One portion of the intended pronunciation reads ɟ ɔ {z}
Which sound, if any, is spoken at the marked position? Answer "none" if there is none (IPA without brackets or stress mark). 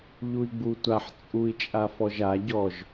ʒ